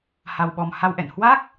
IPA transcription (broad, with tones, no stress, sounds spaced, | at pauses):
h a˧ w ɓ ɔ˧ m h a˧ w ʔ ɛ̰˧˨ n h w a˦˥ k̚